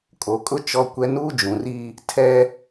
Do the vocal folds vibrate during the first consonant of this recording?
no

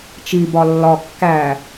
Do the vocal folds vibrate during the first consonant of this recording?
no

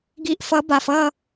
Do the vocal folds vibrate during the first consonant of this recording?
yes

